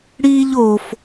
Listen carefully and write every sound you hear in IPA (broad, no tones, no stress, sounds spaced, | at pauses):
ɽ iː ʎ o f